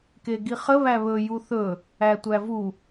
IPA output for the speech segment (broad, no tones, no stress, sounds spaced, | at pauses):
k e ɡ i χ ə β æ β ɵ j u θ ɵ | æ tʷ æ v u